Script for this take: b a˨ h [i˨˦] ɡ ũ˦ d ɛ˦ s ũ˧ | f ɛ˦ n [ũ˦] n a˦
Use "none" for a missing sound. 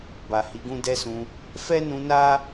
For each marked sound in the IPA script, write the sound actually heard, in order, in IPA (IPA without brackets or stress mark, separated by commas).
i˨˦, ũ˧